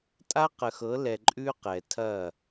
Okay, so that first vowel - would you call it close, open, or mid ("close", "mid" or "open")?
open